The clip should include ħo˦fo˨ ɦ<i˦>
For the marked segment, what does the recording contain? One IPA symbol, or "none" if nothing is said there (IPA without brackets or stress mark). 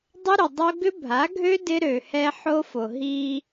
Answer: i˦